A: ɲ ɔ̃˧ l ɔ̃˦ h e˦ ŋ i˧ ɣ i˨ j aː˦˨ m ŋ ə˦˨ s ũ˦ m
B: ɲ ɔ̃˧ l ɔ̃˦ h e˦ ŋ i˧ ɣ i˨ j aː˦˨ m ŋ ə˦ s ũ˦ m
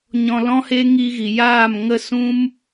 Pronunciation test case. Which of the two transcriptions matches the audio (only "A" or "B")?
A